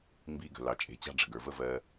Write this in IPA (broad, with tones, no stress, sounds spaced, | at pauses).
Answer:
m b i˧ ɡ ə̤˨ l ɑ˨ t͡ʃʼ e̤˨˦ t͡ɕ ɑ̤˦ ɖ͡ʐ ə˨ ɡ ə˞˨ v ə˦ v ɜ˧